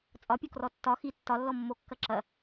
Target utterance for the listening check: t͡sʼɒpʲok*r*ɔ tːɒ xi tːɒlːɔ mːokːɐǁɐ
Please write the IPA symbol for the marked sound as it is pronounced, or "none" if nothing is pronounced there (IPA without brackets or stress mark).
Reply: r